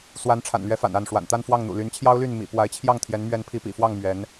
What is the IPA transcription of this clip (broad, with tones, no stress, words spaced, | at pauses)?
swa˧˥nʈ͡ʂʰa̰˨˩nlɥɛ˧˥ fa̰˨˩na˥˩nʂwa̰˨˩n t̪a˥˧n fwɑ˥˩ŋn̪ṵ˨˩ ly˧˥nt͡ɕʰjɑ˥ʊ̯ly˥˩n mḭ˨˩ pwa˧˥ɪ̯t͡ɕʰjɑ˥˩ŋt̪ʰjɛ˧˥n mɥɛ˧˥npʰi˧˥pḭ˨˩fwɑ˥˩ŋ mɥɛ˧˥n